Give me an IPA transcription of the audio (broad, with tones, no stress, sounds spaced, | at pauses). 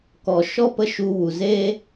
k ɔ˨ ʃ ɔ˦ p ə˧ ʃ u˧ w u˨ z eː˦